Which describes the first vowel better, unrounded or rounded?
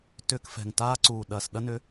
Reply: rounded